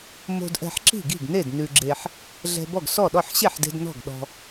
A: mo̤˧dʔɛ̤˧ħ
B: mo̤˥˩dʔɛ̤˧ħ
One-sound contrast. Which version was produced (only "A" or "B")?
A